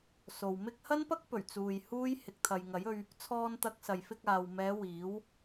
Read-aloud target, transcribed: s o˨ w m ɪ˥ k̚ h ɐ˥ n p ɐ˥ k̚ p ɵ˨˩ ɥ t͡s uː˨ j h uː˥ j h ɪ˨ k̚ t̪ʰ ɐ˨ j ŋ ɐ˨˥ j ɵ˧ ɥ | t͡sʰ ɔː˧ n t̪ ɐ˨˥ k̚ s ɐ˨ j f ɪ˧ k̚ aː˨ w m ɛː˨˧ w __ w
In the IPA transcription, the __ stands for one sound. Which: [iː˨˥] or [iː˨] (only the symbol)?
iː˨˥